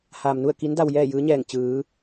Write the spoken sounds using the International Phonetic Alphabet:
haː˩mnu˥˨ə̯ki˧˥n da˧wjɛː˥˨jɯː˧˥ɲɛː˧˩ŋ t͡ɕɯː˩˧

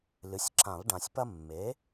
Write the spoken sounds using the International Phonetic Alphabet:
lɨ˩˥sʲǁã˨˩˦lˠɖã˨sʲ pɐ˦mːe˩˥

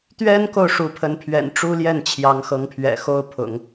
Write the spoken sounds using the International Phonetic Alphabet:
t̪ɥɛ˥nko˨ʊ̯ ʂu˧˥pʰə˧˥npʰɥɛ̰˨˩n ʈ͡ʂu˥ljɛ˥˩n t͡ɕʰjɑ˧˥ŋxɤ˧˥ŋpʰɥɛ̰˨˩ xo˥˩ʊ̯pʰʊ̰˨˩˦ŋ

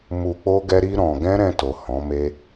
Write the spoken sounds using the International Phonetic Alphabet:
mu˧k͡po˦ ɡɛ˦ɾi˦ ɾɔ̃˧ ɡɛ̃˦ɾɛ̃˧to˨ hɔ̃˨˦me˦

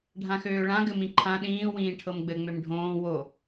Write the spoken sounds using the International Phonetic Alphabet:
ɖʱãxøːɭã ɡɘmĩǃʰã ɗĩː wĩːʈʰɤmɡ͡bɘ ŋ͡mømɖʱõː wo

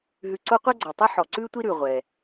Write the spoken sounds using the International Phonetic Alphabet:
ɦʉ˧ǀo˥ qʷɛ˥ɡ͡ǀɔ˩tˤɛ˥ ħɔ˩ ǀʉː˥tʷi˥ɾʉ˩ ʁʷɛ˩

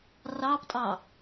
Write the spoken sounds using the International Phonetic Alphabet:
rɑptʼɑ

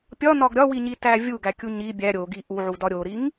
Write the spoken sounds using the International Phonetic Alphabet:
pʲɒnɒɡ ɾʲɒwiɲitæ vʲuɡækʲu ɲi bʲæ ɾʲoɡi ʔuʕudɒ ɾʲoɾiŋ

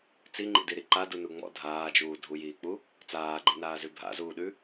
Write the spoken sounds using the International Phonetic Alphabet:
t͡siŋ͡ǃḭdiɾi ǃadunu ŋ͡mɔ̰ dʱaːd͡ʒuː dʱujiːk͡pu | t͡saːɡ͡ǃenaːzʉ bʱa̰zuːɗʉ

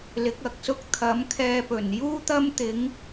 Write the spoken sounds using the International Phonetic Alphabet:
lɪ˨˥k̚ɐ˨˥k̚ sʊ˥k̚ t̪ʰɐ˨˥mkʰɛː˧pɵ˨˩n juː˥t̪ɐ˥mt̪ɪ˨˥ŋ

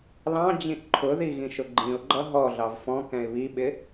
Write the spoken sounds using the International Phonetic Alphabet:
lɑ̃ d͡ʑĩʔǃʰʊði ɣĩʃʊɡ͡ǃĩʊ̯ɡ͡ǃʌ ɦɔɮɑv fɔ̃ kɛ̃ɪ̯βiɓɪ

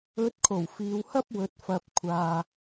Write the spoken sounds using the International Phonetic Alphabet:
ɵ˨˥t̚kʰo˨˩w fiː˨˧whɐ˥p̚wɵ˨t̚fɐ˨p̚ kʷʰaː˨

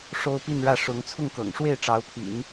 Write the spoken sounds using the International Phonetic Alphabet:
ʂo˥ʊ̯pi˥˧nɻä˥˩ ʂʊ˧˥ŋ t͡sʰʊ˥˩ŋkɤ̰˨˩ŋʂwe˥˩ɪ̯ ʈ͡ʂɑ˧˥ʊ̯pʰḭ˨˩˦n

